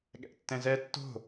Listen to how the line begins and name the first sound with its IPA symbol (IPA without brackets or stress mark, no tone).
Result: ɠ